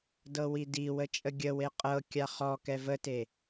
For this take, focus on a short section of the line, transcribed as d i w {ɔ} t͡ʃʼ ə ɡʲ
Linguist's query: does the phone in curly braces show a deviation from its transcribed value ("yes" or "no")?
yes